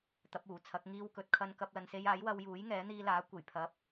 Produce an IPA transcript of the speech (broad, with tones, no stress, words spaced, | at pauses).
t̪ɐ˨˥p̚uː˨˩t͡sʰɐ˨˥k̚ ŋiː˧wkɵ˨˥t̚kʰɐ˧n kɐ˧p̚ lɐ˨nse˧j aː˨˥jwɐ˧wjuː˨˥j ŋɛː˨˥n̪iː˧laː˨˥ kʷe˨˩j pʰɐ˨˥p̚